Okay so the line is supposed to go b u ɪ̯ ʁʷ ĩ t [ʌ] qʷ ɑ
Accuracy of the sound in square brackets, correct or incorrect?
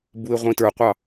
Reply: incorrect